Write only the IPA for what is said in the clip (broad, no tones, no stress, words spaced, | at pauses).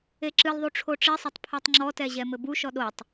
eǁɨlðˤu ʈ͡ʂʰoʈ͡ʂisˤɐtˤ pʰotˤŋ͡ǁɔtɛ ʑɛmɘbuʃɔ ɗotˤ